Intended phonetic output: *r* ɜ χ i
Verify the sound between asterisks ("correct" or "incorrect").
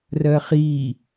correct